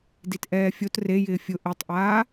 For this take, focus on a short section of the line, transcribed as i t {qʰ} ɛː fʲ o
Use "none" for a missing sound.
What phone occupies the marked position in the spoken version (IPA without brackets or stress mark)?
ʔ